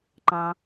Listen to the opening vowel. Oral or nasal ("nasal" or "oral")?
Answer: nasal